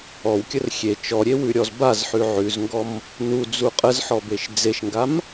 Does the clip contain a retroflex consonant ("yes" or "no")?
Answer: no